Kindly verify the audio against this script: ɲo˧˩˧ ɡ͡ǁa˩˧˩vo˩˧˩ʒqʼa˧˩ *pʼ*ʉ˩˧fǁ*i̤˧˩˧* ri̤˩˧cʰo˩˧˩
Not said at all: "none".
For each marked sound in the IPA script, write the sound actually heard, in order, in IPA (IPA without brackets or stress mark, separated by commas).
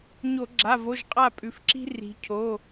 pʼ, i̤˦